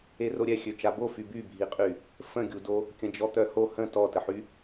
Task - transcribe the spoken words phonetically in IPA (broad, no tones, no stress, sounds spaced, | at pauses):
e r o ɾʲ ɛ xʲ ø t͡ʃ a b o f y b y bʱ i qʼ y | f ə̃ ɡʲ u d o | kʲ ə̃ d͡ʒ ɔ t̪ œ h o h ə̃ t ɔ t ə ħ y